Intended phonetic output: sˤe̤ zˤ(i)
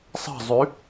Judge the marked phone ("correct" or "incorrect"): incorrect